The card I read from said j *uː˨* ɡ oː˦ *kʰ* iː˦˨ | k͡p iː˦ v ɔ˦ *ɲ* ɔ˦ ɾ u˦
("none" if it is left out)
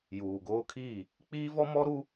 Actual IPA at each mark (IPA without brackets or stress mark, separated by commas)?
uː˨, kʰ, m